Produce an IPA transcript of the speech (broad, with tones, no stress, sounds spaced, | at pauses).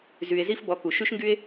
z y˧ e̯ z i˦ f b ɔ˧ k u˨ ʃ y˦ ʃ ŋ ɡ y˦ e̯